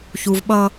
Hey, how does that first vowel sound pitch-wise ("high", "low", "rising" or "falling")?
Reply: low